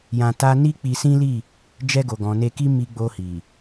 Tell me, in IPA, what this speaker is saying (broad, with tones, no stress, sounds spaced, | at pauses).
j ã˧ t a˦ n i˦ k͡p i˧ s ĩ˦ l i˦˨ | d͡ʒ ɛ˧ ɡ o˨ ɡ ɔ̃˨ n e˧ k i˦ m i˧ ɡ͡b o˧ h i˨